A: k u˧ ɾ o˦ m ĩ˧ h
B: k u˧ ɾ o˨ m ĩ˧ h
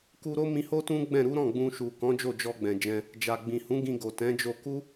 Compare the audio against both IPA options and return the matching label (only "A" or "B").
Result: A